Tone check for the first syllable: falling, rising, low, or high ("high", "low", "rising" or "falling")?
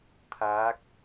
rising